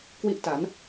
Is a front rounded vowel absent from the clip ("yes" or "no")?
yes